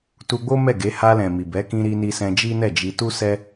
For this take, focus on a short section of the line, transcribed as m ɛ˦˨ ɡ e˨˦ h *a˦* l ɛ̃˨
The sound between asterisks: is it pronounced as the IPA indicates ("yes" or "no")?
no